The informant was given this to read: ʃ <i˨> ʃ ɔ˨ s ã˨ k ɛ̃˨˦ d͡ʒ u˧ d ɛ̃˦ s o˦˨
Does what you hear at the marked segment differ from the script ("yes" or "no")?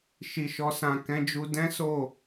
no